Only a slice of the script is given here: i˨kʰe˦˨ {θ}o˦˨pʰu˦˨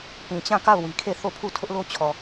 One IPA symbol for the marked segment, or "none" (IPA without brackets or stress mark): θ